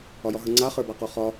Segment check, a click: present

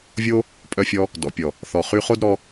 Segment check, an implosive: absent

